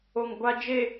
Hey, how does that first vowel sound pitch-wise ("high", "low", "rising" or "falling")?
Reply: low